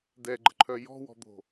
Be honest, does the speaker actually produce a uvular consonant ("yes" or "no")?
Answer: no